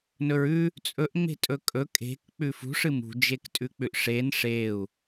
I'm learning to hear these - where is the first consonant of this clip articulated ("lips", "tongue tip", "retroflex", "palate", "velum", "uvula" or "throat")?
tongue tip